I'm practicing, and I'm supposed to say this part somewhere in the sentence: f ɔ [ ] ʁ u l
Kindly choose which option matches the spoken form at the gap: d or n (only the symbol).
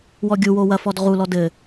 d